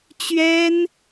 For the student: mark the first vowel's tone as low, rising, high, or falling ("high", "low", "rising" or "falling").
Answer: high